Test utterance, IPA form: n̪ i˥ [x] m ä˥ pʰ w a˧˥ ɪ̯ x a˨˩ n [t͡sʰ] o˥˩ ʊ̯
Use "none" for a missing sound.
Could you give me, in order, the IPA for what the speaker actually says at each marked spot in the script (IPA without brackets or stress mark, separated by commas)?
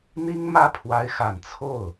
ŋ, t͡sʰ